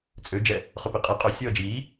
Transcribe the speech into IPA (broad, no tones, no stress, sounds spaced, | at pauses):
t͡sʼ ø d͡ʒ ɛ | χ ɵ p i qʼ e qʼ ø sʲ ʌː d͡ʒ iː